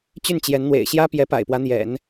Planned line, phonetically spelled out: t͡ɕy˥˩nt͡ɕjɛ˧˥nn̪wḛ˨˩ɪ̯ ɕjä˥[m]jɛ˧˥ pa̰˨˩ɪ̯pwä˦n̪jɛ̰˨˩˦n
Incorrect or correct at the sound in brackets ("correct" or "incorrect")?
incorrect